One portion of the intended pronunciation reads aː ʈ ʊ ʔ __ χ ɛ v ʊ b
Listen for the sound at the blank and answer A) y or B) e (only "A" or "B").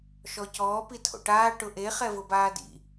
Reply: B